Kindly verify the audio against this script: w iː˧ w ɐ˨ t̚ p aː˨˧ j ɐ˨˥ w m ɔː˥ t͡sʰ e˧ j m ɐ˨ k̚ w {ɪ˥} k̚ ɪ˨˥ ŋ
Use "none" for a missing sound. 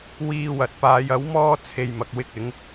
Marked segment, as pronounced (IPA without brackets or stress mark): ɪ˥